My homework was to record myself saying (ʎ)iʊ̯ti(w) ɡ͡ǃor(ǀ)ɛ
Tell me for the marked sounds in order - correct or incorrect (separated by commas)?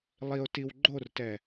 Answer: incorrect, correct, incorrect